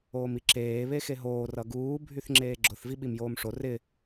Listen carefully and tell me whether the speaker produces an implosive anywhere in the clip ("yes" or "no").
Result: yes